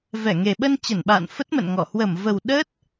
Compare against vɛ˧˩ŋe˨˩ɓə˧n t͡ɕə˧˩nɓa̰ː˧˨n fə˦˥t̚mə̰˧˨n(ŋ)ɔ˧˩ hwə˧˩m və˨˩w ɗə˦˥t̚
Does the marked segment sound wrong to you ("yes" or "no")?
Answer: no